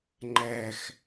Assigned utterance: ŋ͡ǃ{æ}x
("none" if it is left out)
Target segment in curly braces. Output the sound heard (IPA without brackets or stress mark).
æ